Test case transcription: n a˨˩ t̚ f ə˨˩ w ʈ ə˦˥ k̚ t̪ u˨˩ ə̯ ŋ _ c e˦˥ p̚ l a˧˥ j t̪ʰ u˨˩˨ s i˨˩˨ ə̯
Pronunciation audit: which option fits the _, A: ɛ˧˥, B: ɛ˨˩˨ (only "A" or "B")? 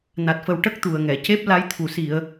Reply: B